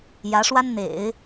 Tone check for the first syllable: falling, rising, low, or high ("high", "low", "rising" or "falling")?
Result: rising